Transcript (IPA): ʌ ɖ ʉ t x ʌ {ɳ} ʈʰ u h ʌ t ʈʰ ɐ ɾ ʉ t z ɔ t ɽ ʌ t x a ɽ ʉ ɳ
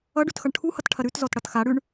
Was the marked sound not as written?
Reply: no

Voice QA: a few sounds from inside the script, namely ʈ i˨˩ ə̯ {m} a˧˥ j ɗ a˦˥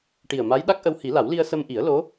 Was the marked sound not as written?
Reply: no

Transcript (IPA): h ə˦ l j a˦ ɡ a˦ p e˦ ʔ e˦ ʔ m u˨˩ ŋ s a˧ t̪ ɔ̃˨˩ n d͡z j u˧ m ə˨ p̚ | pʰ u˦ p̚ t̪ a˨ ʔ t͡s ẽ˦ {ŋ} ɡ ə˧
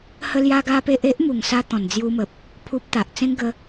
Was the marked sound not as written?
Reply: no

